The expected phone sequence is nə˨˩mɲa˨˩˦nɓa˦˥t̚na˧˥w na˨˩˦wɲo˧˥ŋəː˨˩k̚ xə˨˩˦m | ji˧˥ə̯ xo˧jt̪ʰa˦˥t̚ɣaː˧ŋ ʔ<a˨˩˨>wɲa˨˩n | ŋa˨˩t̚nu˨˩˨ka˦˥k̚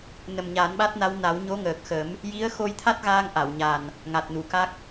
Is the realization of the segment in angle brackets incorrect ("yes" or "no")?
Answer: no